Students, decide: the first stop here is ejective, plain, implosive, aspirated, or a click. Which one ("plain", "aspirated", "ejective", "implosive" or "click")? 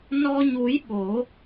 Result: implosive